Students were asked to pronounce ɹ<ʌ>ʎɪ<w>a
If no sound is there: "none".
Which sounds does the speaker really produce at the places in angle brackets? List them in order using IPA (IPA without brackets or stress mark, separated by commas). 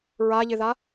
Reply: a, ð